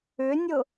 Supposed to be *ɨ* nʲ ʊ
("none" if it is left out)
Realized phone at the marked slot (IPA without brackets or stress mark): ʏ